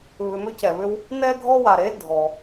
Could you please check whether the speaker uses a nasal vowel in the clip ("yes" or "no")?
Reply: no